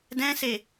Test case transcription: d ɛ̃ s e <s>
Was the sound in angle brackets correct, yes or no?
no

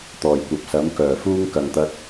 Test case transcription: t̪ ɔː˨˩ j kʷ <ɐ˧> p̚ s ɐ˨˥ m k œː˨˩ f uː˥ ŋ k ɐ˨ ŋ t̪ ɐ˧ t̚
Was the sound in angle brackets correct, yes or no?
no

